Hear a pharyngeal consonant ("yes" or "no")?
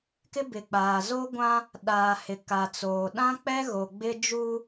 no